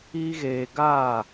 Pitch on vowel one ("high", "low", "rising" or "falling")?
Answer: high